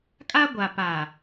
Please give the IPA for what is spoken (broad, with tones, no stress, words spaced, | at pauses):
kʼa˦ɡʷa˨pa˨